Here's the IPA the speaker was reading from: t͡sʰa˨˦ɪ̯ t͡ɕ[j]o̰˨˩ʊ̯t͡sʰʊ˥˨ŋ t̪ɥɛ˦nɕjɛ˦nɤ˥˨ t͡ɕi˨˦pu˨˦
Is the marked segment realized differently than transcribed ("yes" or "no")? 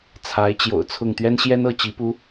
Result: no